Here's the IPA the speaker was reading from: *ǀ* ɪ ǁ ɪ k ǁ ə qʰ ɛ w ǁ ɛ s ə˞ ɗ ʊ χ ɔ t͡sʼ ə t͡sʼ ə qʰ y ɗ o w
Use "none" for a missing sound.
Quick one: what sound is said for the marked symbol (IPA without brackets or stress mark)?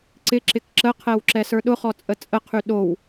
ǀ